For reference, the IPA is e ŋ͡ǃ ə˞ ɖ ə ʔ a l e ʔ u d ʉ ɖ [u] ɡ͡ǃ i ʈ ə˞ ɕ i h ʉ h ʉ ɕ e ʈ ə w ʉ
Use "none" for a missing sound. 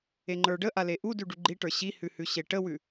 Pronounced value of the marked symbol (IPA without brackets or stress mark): u